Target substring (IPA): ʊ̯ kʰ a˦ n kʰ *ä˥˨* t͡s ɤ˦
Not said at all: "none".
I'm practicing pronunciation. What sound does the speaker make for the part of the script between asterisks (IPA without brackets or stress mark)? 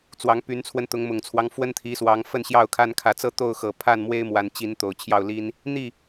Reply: ä˨˦